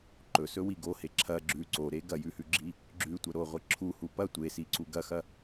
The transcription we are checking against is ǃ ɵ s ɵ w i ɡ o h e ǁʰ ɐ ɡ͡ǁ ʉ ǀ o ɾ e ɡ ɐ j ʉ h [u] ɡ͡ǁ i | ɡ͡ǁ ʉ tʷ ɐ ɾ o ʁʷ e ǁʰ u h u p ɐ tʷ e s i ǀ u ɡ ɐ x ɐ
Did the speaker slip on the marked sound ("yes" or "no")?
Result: yes